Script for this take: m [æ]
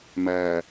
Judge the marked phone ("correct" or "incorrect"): correct